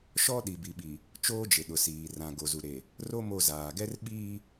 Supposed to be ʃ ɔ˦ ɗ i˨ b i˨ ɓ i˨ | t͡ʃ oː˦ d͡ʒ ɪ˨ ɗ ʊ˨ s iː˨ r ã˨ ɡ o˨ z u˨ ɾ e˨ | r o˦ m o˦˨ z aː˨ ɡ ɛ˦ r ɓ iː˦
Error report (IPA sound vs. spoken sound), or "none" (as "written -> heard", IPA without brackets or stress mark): none